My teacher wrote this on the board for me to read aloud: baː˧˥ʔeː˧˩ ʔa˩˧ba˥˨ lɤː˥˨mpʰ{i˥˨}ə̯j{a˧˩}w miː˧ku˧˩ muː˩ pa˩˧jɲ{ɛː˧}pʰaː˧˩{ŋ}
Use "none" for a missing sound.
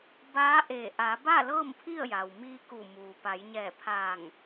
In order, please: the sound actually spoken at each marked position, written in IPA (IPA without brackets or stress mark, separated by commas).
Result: i˥˨, a˩, ɛː˧˩, ŋ